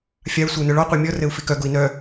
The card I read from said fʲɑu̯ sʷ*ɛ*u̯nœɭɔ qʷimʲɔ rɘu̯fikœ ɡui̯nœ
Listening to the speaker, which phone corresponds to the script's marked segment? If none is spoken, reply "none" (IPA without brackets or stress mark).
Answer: ɘ